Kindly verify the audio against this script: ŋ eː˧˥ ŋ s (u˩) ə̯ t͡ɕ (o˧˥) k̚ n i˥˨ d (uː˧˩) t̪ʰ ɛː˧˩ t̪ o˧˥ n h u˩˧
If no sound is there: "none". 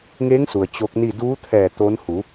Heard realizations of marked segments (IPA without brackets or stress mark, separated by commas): u˩, o˧˥, uː˧˥